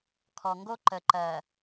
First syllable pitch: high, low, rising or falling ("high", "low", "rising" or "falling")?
low